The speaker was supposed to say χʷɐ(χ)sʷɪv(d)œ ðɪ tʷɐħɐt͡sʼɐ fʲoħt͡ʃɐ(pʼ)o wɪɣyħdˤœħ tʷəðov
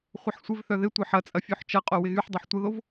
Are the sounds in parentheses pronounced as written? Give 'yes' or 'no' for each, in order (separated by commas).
no, no, no